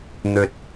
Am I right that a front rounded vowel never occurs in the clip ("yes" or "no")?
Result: yes